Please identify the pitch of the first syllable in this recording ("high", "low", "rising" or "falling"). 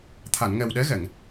low